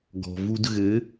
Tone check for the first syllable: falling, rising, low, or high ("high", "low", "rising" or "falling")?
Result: low